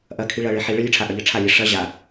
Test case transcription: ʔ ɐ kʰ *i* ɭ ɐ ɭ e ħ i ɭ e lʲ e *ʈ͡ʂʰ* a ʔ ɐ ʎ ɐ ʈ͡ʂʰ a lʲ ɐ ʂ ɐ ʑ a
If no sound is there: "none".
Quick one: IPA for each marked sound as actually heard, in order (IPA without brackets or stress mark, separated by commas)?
i, ʈ͡ʂʰ